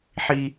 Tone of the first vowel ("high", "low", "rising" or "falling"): high